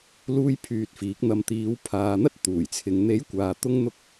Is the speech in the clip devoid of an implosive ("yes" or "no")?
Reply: yes